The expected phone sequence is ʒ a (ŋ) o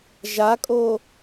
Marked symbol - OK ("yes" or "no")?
no